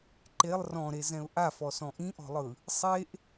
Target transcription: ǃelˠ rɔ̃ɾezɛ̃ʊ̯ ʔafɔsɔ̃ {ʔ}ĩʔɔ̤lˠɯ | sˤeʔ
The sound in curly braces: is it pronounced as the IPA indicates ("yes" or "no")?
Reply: yes